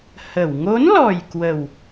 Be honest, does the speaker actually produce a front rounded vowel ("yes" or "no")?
no